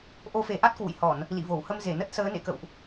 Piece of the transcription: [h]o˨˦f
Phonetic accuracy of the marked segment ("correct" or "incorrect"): incorrect